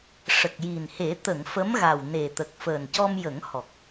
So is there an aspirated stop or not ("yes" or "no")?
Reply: no